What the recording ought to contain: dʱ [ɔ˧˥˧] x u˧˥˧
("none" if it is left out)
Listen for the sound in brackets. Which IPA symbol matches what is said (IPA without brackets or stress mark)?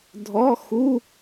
ɔ˧˥˧